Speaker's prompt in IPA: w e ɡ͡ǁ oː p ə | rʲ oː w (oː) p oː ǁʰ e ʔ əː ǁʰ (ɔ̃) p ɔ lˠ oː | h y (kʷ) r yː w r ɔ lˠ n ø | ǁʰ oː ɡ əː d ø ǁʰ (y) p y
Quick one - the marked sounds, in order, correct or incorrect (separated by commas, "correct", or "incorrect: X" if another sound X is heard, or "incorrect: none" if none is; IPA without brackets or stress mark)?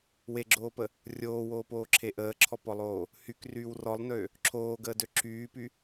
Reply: correct, incorrect: ɔ, incorrect: k, incorrect: yː